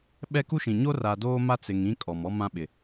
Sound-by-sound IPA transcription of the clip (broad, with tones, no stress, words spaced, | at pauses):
ɓɛ˦ku˦ʃĩ˨ ɲo˦ra˨doː˦ ma˦t͡sɪ˨ŋ ĩ˦kʼɔ˨m ɔ˦mã˦ɓɪ˨